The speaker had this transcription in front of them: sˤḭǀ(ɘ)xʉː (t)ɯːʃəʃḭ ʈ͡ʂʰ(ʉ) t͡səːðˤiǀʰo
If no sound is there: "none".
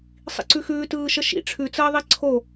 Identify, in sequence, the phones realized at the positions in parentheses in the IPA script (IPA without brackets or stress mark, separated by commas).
ʉ, t, ʉ